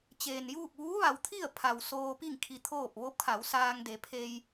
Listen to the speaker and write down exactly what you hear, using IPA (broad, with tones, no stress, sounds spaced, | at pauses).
t͡ɕ eː˩ n j uː˥˨ k̚ ʋ uː˧˥ ʋ a˩˧ w t̪ʰ i˥˨ ə̯ pʰ a˩ w s oː˧ p i˥˨ ŋ kʰ i˧ t̪ʰ oː˥˨ p̚ ʋ o˧˥ p̚ kʰ a˩˧ w s aː˧ ŋ d e˩˧ pʰ eː˧ j